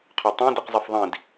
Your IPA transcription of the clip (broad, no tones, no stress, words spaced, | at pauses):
qʰɵtˤĩ diqzˤɛfðˤĩd